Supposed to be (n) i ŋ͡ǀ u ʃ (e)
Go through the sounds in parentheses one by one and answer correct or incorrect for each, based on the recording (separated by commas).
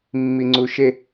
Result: incorrect, correct